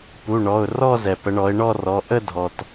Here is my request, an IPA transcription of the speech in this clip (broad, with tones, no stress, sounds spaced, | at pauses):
p u˩˧˩ ɳ ɔ˩˧˩ ʊ̯ r ɔ˥˧ z ɛ˩ p ə˩˧ ɳ ɔ˩˧ ɪ̯ ɳ ɔ˥˧ r ɔ˩˧˩ ʔ ə˥˧ dʱ ɔ˩ t